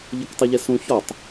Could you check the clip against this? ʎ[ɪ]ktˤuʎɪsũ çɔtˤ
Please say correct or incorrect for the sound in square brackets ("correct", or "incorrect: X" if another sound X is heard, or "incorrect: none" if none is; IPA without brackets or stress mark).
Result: correct